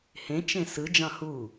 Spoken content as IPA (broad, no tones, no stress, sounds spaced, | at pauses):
h ẽ t͡ʃ ẽ s ɯ d͡ʒ ɑ̃ h u